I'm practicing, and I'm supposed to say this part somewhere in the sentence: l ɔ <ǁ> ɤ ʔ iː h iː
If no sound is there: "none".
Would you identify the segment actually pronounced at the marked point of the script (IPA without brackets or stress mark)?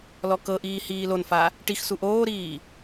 k